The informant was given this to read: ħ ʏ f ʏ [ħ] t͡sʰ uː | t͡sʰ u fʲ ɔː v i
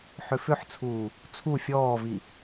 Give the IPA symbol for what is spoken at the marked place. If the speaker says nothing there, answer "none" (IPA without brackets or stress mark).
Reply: ħ